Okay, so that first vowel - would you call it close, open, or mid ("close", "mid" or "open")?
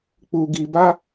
close